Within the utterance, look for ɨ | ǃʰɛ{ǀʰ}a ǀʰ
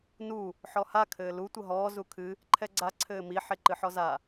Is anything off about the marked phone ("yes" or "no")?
yes